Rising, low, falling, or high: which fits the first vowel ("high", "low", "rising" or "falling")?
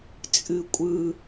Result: falling